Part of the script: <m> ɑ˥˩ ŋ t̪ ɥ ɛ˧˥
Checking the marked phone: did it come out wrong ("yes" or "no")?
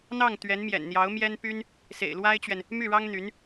yes